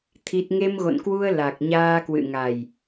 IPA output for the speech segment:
t̪ʰ i˦˥ t̚ ŋ e˧ m ɣ o̰˧˨ n k w u˧ ə̯ l a˨˩ k̚ ɲ aː˧ k w ɨ̰˧˨ ŋ a˨˩ j

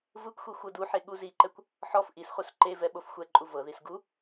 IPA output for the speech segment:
v ɯ kʷ xʷ i xʷ ɤ d u ħ e ɠ u z i ǃ ɛ kʷ | ħ ɔ f ʔ i s χ u s ǃ e v ɛ ɓ o f xʷ ɛ ǃʼ u v ɤ ð i s ɡ u

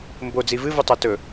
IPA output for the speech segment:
m b o d͡z i v ɨ v u tˤ a t ɵ

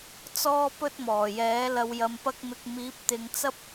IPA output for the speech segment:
t͡s ɔː˥ p ɵ˥ t̚ m ɔː˨˩ j ɛː˨˥ l ɐ˨ w j ɐ˨ m p ɐ˧ k̚ m ɪ˨ k̚ m iː˨˥ p̚ t̪ ɪ˨˧ ŋ t͡s ɐ˥ p̚

